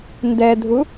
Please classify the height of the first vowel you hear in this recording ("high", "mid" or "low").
mid